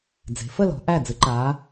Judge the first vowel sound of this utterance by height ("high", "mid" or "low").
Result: mid